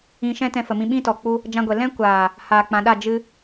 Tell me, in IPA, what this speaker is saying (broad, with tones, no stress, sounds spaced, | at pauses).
ĩ˧ ʃ ɛ̃˦ t ɛ̃˧ f ə˨ m ĩ˧ ɓ ĩ˦ t ɔ˨ k͡p u˧ | d͡ʒ ã˧ ɡʷ ɛ˨ l ɛ̃˦ kʷ aː˨ | h aː˨ k͡p ã˨ ɗ a˦˨ d͡ʒ ɨ˧